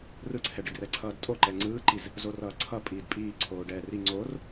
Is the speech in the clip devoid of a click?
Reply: no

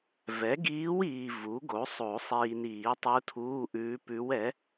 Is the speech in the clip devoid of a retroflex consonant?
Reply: yes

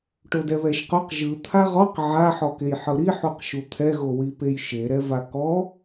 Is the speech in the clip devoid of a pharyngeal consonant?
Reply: no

